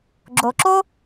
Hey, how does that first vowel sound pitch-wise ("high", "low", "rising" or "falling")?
low